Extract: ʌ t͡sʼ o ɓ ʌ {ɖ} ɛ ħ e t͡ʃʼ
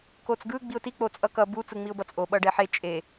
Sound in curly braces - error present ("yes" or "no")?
no